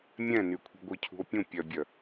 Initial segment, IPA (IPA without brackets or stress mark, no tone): mʲ